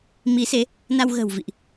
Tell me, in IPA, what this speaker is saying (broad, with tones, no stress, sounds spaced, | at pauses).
m i˨˦ s e˨˦ | n a˧ w ɣ ə̤ː˨˩ w v ḭ˧˨ ʔ